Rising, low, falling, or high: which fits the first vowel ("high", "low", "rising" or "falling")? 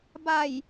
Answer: low